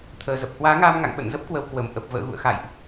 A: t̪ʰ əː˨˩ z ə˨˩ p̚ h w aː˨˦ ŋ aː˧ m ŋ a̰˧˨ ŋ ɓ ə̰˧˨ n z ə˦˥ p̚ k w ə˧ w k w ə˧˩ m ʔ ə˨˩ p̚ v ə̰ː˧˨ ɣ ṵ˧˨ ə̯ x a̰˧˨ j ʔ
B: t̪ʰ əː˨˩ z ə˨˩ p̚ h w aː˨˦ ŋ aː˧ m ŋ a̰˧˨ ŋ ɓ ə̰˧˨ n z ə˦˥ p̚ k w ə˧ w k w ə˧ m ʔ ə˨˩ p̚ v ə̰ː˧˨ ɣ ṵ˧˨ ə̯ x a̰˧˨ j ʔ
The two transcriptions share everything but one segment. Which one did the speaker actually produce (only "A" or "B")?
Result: A